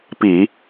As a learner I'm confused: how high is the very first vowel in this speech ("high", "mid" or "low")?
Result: high